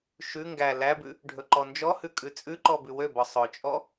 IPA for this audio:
ʃ ʉ ŋ ɡ æ l æ b ʉ | ɖʱ ɵ ǃ ɔ n d͡ʒ ɔ h ʉ kʼ ʉ t͡sʼ ʉ ǃ ɔ b ʉ w ø b ɔ sˤ ɵ t͡ʃʼ ɔ

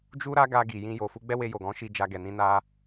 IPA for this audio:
d͡ʒ u˦ ɾ a˦ ɡ a˧ ɡ i˨ j ĩ˧ j o˨ f u˧ ɡ͡b ɛ˦ w e˧ j o˨ ɡ ɔ̃˨˦ ʃ i˧ d͡ʒ a˧ ɡ ɛ˨ n ĩ˧ n a˧

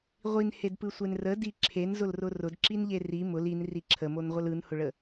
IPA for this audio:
ʁʷ i n h e d p ɯ sʷ e n r ə d i ǁʰ e n z ʊ l r ʊ r ʊ d ǁ i n ʎ e r i m ʊ l i n r i ǁʰ ə m o n ʁʷ ə l ɯ n h ʊ ɭ ə

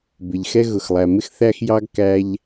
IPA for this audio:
b ɪ˩ ʎ x ɛ˥ ɣ ʊ˩ x lˠ æ˩ m ɪ˥ x θ æ˥ x j ɑ˥ ɡ k æ˥ ʎ

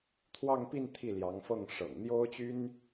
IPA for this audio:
t̪ʰ w ɑ˥˧ ŋ p i˥˧ n t̪ʰ i˥˩ l j ɑ˧˥ ŋ f ɤ˥˩ ŋ ʂ ɤ̰˨˩ ŋ n̪ j o˥ ʊ̯ t͡ɕ y˥ n

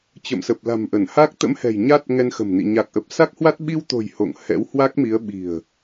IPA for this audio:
t͡ɕ ə̰˧˨ m s ə˨˩ p̚ l a̤˨˩ m ʔ ə˧˩ n h a˦˥ k̚ t̪ ə̰˧˥ m h ɛ̤˨˩ j ɲ a˦˥ t̚ ŋ ɛ˧ n x ə̤˨˩ m n ḭ˧˨ ɲ a˨˩ k̚ ʔ ə˨˩ p̚ s a˦˥ k̚ h w a˦˥ t̚ ɓ i˧ w t̪ o̤˨˩ j h o̰˧˨ ŋ h ɛ̰˧˥ w h w a˦˥ k̚ m i˨˦ ə̯ ɓ i̤˨˩ ə̯

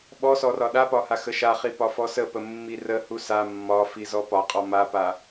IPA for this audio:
ɓ ɔ s ɔ r ɒ ɗ a p ɒ h a x ə ʃ a χ i p ɒ f ɔ s ə p ə mː i r ə h u s a mː ɒ f i z ɔ p ɒ qʼ ɔ m a p a

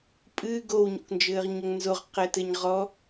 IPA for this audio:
pʼ ɨ ɡ o w ɲ o̰ k n d͡ʒ ɘː ʁ ɲ ɐ ŋ n z o ʁ q ɛ t ɘ ɲ ʁ ɔ

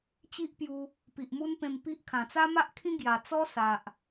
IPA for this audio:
t͡ɕ i˦ ʔ p j u˧ | p i˨ ʔ m u˦ n p ẽ˧ m p i˦ ʔ kʰ ã˨˩ t͡s a˦ m a˦ ʔ kʰ ĩ˦ ɡ j a˨˩ t͡s ɔ˦ s a˨ ʔ

